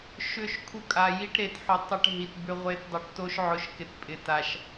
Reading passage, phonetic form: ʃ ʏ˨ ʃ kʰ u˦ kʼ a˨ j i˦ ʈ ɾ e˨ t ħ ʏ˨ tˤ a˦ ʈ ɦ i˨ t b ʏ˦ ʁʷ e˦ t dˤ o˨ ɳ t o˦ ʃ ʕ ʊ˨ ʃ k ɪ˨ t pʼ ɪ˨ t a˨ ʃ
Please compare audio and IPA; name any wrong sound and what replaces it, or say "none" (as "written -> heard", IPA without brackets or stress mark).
ɳ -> ʈ